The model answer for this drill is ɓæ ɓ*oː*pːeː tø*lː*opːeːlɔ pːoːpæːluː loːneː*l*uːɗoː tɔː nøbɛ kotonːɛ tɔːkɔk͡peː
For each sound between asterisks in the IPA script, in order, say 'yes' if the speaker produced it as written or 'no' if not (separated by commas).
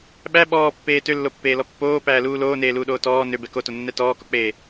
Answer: no, yes, yes